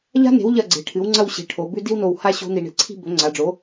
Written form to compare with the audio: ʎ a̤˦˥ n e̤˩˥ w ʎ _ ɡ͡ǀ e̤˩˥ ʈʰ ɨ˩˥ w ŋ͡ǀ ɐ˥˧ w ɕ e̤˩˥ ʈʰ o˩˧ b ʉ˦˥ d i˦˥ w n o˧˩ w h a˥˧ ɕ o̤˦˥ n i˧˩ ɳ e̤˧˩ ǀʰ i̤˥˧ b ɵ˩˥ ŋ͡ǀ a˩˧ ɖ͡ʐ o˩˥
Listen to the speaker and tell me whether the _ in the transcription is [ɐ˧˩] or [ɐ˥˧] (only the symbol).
ɐ˧˩